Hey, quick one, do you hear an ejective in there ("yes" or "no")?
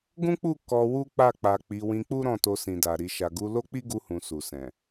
no